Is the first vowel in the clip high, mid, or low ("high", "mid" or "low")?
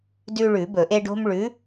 high